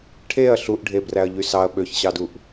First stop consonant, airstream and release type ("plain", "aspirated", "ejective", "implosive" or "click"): aspirated